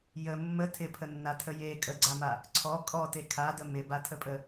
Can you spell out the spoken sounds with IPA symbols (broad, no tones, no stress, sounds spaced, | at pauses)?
j ə mː ə tʰ ɪ pʰ ə nː a tʰ ə j e kʼ ə ɡ͡ǀ a m a | ǀʰ ɔ kʼ ɔ t e kʰ a d ə m ɪ b a tʰ ə pʼ ə